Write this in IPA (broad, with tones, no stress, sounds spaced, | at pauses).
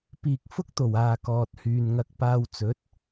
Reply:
p iː˨ k̚ f ʊ˥ k̚ t̪ o˨˩ w aː˨ k ɔː˨ t̚ h yː˨ n ŋ ɐ˧ k̚ p aː˧ w t͡s ɵ˨˥ t̚